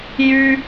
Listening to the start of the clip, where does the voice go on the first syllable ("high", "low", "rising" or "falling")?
high